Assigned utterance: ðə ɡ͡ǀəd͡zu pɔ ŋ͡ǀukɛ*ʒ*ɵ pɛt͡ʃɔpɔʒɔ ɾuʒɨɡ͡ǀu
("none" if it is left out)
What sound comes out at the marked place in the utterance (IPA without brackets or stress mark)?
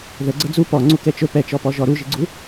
t͡ʃ